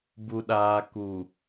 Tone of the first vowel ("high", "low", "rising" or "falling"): low